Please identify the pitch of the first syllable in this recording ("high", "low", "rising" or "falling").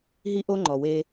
high